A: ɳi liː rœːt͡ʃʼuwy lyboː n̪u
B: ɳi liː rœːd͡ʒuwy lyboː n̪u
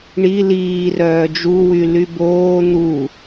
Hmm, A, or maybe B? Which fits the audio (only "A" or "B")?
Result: B